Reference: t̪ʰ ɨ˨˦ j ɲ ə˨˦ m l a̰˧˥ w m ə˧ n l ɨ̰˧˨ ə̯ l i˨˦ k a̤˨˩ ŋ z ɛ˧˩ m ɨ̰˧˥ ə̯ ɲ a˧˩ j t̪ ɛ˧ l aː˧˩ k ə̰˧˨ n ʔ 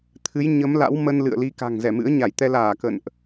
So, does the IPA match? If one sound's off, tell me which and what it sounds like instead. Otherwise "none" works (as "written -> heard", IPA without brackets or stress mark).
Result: none